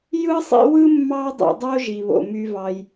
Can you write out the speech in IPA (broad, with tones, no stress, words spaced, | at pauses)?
jɯ˥sˤḭ˦wɯ˥ mːɑ˦dˤḭ˨dˤo˦ ʒi˩βo̰˩my˨vɑ˩j